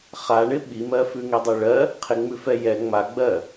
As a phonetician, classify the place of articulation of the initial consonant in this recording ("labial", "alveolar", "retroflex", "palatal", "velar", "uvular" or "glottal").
uvular